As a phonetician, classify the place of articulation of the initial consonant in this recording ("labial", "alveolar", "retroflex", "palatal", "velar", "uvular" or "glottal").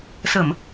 alveolar